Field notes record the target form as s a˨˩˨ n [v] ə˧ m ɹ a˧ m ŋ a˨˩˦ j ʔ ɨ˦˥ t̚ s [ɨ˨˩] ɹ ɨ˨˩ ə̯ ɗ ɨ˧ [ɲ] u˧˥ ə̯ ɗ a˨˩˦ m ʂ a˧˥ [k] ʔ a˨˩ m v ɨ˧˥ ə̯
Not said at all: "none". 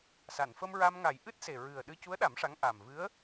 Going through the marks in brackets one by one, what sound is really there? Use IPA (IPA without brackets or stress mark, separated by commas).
f, e˨˩, c, ŋ